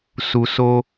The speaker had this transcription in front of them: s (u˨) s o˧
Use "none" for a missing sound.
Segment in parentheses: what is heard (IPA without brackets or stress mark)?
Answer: u˨